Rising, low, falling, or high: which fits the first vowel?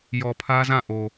low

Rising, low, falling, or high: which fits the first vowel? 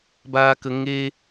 high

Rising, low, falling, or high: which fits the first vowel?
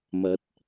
rising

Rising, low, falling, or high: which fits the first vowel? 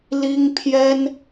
high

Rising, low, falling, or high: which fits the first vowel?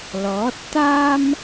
rising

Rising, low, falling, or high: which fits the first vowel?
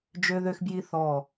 high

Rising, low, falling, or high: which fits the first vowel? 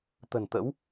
low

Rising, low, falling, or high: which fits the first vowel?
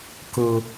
low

